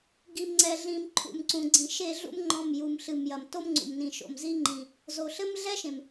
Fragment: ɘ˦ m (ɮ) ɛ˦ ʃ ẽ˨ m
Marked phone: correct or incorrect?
correct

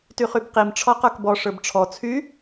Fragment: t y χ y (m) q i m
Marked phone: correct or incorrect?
incorrect: b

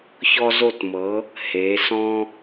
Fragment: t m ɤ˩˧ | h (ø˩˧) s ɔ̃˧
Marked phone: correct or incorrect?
incorrect: e˩˧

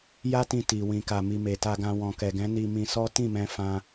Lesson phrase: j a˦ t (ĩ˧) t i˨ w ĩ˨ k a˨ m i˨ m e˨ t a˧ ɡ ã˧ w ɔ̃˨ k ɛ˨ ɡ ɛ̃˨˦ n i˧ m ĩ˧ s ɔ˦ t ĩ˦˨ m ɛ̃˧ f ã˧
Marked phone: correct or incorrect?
correct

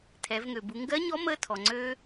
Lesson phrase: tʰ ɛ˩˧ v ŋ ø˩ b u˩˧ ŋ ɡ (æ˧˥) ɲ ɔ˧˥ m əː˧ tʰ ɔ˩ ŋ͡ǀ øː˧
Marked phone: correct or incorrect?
incorrect: ɜ˧˥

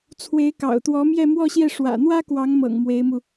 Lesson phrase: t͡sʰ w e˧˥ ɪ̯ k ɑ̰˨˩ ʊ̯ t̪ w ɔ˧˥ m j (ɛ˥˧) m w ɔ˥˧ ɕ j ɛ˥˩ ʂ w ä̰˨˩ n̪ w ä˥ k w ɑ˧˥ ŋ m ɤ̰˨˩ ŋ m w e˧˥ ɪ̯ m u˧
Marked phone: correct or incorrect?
correct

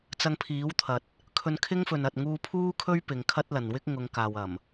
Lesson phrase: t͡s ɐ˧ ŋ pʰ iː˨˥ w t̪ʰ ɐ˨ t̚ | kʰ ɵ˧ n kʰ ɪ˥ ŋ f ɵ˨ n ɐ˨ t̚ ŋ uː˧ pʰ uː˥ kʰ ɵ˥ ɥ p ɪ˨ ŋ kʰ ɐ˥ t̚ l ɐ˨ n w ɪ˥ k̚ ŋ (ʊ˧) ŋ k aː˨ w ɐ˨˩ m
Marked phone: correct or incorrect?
incorrect: ʊ˨˧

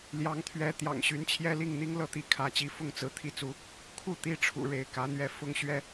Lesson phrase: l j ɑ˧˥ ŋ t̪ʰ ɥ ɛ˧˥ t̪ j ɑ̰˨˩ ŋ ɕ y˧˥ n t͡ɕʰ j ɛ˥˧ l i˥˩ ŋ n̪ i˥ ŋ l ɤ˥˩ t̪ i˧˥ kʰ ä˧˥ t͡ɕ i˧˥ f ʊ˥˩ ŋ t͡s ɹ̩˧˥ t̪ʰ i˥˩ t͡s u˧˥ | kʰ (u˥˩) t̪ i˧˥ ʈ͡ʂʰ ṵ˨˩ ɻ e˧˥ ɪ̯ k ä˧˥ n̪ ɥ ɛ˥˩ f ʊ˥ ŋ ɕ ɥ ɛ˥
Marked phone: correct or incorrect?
correct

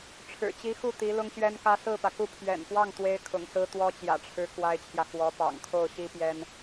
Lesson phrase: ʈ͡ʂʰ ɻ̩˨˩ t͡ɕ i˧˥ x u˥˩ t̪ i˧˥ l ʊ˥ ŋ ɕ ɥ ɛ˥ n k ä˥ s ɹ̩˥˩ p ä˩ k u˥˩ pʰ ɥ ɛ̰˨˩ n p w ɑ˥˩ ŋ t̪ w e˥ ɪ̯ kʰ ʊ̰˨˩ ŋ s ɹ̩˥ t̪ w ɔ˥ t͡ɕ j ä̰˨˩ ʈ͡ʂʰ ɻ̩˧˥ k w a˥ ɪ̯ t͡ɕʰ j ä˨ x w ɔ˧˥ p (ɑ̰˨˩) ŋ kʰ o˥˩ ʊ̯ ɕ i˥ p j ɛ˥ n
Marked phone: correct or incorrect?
correct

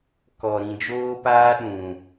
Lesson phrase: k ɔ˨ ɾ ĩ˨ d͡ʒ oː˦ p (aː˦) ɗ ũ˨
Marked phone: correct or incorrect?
correct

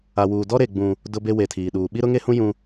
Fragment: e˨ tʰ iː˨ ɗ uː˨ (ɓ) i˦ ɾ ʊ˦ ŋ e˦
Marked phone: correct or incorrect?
correct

